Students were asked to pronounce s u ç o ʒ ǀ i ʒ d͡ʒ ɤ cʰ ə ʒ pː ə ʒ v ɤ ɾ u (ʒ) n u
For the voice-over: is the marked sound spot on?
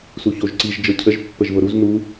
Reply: no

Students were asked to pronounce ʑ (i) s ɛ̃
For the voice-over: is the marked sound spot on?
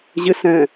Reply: no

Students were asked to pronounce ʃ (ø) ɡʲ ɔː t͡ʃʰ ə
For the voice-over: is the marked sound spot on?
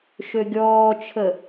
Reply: yes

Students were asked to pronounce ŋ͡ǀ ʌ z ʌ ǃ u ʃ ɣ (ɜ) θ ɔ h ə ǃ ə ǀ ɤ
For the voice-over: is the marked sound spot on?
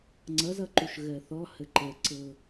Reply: yes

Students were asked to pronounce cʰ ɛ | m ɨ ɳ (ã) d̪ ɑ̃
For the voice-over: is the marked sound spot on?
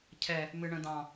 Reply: no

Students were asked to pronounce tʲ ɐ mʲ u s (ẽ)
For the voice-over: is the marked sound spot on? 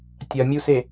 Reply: no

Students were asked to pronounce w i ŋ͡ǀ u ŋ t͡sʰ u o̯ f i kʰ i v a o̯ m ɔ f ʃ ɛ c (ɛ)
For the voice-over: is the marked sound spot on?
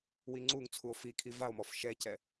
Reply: yes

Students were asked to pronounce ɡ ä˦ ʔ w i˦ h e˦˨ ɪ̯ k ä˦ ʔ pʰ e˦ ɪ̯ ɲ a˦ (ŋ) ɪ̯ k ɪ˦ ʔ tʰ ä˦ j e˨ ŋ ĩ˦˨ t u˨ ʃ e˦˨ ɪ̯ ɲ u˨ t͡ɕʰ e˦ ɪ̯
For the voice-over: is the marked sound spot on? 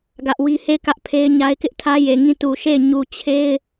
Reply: no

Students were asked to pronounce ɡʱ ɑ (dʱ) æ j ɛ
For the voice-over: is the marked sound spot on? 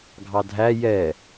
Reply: yes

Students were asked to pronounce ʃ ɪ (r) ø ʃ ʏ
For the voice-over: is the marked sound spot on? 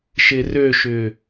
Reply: yes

